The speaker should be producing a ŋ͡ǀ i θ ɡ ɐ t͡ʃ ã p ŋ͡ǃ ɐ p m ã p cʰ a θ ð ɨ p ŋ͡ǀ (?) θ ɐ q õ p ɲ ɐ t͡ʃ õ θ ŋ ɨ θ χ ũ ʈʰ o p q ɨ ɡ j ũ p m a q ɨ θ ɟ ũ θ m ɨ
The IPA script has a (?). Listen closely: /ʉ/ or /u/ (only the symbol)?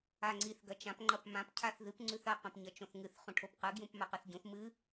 ʉ